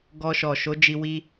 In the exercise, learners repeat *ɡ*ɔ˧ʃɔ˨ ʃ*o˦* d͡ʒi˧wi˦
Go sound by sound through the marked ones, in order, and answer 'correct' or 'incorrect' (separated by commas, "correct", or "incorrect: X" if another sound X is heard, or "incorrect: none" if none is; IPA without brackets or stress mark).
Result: correct, incorrect: o˨˦